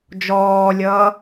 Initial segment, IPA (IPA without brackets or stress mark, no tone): d͡ʒ